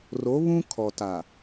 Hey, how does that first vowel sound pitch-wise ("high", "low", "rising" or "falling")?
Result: rising